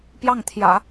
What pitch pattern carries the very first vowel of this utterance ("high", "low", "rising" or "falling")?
falling